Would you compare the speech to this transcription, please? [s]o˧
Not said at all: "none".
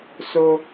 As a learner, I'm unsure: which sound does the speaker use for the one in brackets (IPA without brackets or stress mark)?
s